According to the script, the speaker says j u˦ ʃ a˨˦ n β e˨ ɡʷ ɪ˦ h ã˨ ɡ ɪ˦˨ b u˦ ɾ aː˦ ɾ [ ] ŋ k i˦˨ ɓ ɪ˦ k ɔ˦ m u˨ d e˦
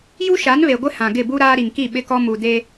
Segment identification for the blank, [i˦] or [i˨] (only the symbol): i˨